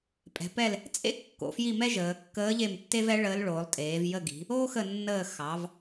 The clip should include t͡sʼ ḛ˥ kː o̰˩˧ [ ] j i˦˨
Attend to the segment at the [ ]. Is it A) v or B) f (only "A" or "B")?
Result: B